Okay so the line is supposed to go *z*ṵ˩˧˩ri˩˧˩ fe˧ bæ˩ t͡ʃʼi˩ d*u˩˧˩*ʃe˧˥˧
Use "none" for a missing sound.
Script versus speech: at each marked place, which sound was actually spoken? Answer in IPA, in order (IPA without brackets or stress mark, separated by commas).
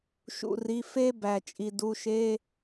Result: ʃ, u˩˧˩